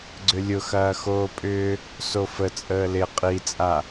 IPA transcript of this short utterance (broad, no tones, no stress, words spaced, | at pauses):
ɡ͡ǀʏlʲʊxɐːxoː pʼʏː | sofə t͡sʼəːlɪ qʼit͡sʼa